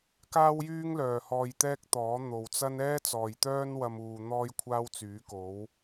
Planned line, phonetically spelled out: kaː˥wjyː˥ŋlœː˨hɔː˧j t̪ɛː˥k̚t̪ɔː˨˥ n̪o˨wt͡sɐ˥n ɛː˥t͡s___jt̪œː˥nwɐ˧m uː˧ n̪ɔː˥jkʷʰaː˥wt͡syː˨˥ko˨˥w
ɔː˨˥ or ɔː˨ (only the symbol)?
ɔː˨